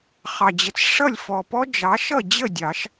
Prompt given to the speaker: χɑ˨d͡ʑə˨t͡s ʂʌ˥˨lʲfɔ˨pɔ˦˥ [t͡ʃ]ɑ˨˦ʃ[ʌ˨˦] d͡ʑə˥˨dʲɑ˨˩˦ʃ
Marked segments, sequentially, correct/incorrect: incorrect, incorrect

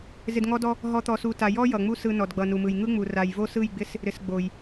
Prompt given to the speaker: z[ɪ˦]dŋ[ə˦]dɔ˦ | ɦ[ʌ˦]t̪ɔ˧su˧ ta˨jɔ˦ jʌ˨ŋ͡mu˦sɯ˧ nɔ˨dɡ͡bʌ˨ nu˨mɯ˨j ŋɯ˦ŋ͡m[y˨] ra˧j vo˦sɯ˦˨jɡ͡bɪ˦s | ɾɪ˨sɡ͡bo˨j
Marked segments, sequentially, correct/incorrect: incorrect, incorrect, incorrect, incorrect

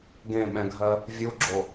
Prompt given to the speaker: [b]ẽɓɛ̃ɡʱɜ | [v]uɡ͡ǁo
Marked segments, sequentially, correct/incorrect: incorrect, incorrect

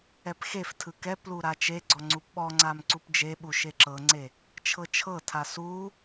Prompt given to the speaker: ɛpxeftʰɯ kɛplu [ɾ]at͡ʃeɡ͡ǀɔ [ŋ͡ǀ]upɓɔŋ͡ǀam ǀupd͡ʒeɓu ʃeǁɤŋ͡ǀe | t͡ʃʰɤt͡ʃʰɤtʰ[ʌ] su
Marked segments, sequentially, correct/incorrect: correct, correct, incorrect

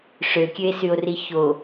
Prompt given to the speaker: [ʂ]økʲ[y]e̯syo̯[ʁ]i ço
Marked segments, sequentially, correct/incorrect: correct, incorrect, incorrect

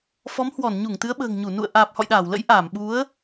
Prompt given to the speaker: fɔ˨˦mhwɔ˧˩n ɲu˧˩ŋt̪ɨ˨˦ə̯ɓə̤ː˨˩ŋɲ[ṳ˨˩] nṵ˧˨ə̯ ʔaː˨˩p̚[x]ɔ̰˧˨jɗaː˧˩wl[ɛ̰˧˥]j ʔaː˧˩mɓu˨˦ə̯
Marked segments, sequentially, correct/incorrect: incorrect, incorrect, incorrect

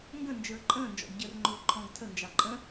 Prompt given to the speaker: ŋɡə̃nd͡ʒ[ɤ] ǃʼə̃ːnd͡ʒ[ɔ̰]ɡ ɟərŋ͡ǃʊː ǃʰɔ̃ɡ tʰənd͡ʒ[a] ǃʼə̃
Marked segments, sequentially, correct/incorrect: incorrect, correct, incorrect

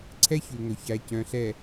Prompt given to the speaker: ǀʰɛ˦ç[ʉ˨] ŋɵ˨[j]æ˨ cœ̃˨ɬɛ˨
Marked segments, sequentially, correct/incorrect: correct, incorrect

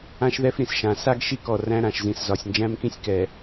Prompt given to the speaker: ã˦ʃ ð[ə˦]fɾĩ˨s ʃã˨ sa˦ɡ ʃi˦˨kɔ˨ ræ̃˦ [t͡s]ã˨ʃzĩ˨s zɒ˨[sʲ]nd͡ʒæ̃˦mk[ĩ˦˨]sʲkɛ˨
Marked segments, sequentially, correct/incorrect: incorrect, incorrect, correct, incorrect

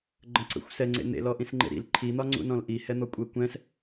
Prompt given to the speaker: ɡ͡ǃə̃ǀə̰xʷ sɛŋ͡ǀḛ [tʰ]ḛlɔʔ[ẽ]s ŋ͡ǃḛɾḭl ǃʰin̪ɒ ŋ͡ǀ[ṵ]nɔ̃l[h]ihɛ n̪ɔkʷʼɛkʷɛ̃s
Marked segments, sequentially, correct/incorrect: incorrect, incorrect, correct, incorrect

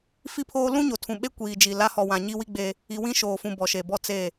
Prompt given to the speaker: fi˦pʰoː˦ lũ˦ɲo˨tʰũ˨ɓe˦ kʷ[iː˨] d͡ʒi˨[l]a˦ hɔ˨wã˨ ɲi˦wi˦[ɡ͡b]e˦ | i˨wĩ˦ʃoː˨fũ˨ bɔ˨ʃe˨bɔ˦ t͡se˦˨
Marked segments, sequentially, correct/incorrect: correct, correct, correct

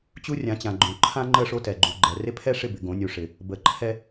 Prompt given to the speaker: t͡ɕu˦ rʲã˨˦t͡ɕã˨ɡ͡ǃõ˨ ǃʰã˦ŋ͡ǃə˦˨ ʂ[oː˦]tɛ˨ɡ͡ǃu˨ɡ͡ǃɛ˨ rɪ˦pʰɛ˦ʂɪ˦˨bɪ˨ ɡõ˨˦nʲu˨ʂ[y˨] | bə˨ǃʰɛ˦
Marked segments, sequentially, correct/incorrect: incorrect, incorrect

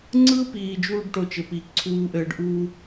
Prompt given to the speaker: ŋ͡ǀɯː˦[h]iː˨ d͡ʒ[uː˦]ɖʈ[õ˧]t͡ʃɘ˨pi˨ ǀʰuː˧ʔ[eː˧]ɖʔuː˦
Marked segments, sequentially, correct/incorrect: incorrect, correct, incorrect, incorrect

